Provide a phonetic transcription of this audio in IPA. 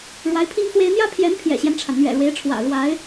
ɻ w a˧˥ ɪ̯ pʰ i˥ ŋ x w e˥ ɪ̯ n̪ j ä˥ pʰ j ɛ˧˥ n pʰ j ɛ̰˨˩ ɕ j ɛ˦ n ʈ͡ʂʰ a˩ n n̪ ɥ ɛ̰˨˩ ɻ w e˧˥ ɪ̯ ʈ͡ʂʰ w ä̰˨˩ ɻ w a˧˥ ɪ̯

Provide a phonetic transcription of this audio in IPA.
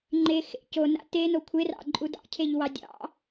ŋ͡ǃ e x ḛ c o n a̰ t e n o kʷʰ e r ɑ̰ ǃʼ u d ɑ̰ cʰ e ʎ w ɑ dʲ ɑ̰

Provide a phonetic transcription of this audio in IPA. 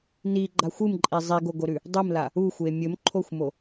n i ɡ͡ǃ a xʷ ɨ m ǃʼ i zˤ i ɡ o ɡ o ɾ ʉ | dˤ ɨ m l a | u xʷ e mʲ ɵ m ǃʰ o xʷ m o

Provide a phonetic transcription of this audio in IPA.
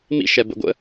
m ḭ ʃ ɛ b ə̰ ɡʷ ə̰

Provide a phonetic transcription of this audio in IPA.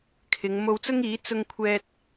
kʰ ɪ˨˧ ŋ m o˧ w t͡s ʊ˥ ŋ iː˨˥ t͡s ʊ˧ ŋ kʷʰ ɛː˧ t̚

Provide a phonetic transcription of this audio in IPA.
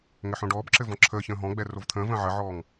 ŋ ɘ ħ õ ɖ ɔː b ǁ ɘ v ɔ̃ ǁʰ əː ç ə̃ː ɦ ɔ̃ ɡ͡b ɛ r o v t̪ʰ ə̃ː v ə̃ː ʕ ə ʕ ɔː ŋ

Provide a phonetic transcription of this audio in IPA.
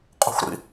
qʼ ṳ xʷ ɾ ḭ

